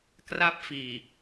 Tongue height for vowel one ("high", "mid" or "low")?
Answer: low